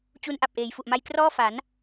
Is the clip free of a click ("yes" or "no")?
yes